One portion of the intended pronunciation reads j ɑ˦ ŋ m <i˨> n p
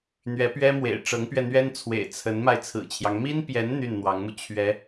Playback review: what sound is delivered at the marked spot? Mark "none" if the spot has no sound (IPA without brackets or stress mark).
i˥